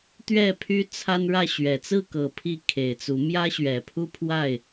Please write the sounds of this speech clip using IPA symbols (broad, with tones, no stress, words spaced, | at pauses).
t̪ɥɛ˥˨pʰy˦ t͡sʰa˦nɻä˥˨ɕɥɛ˨˩ t͡sɹ̩˥˨kɤ˨˩ pʰi˥˨ kʰe˨˩ɪ̯t͡su˨˦ mjä˦ɕɥɛ˨˩pʰu˦pʰwa˥˨ɪ̯